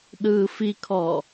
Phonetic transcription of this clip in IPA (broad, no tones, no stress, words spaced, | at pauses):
ɗɯːfikʰɔː